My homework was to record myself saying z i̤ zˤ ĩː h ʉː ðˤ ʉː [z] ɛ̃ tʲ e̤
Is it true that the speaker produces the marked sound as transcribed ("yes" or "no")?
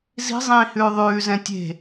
yes